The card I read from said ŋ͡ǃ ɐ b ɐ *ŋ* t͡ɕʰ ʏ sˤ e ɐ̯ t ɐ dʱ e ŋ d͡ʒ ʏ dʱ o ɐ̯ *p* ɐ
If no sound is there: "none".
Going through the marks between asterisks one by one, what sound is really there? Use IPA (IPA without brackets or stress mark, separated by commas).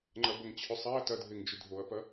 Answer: ŋ, p